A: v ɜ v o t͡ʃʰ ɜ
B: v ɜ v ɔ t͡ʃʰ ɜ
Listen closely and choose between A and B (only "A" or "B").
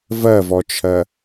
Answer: B